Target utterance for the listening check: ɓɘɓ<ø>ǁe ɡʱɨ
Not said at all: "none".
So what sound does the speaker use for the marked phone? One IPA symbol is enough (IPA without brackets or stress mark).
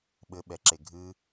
ɛ